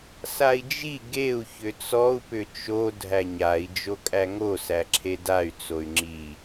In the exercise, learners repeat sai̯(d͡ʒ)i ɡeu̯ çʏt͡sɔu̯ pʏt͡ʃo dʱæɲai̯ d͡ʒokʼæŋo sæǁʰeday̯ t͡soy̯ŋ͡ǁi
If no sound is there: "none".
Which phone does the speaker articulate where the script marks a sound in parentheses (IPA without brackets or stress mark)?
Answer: d͡ʒ